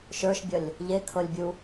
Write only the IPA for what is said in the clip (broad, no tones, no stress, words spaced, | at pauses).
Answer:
ʃə˞ʃbʲʌlʲ | ʎekʰɤlʲbʲu